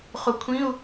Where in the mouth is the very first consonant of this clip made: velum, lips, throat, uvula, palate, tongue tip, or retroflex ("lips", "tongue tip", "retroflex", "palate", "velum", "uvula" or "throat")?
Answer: uvula